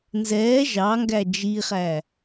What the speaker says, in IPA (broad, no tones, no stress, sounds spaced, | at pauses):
n z ɛː ʒ ɑ ŋ ɡ æ d͡ʒ i χ æ